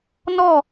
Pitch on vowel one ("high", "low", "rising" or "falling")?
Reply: falling